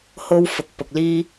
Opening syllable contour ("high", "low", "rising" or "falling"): high